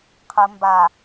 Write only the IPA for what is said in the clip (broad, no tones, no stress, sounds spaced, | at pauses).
qʰ ə m b a